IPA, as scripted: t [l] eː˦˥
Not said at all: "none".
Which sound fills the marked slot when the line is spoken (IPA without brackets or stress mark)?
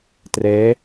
r